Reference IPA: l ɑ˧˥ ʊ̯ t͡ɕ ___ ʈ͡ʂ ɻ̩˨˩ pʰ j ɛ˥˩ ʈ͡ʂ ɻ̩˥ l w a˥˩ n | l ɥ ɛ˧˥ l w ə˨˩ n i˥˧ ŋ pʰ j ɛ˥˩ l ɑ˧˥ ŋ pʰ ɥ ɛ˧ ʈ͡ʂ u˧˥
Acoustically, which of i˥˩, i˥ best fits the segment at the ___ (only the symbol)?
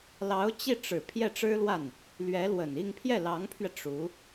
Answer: i˥˩